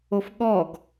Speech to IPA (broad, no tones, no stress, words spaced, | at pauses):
ofɠɔɡ